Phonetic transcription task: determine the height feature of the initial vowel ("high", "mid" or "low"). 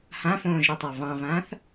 low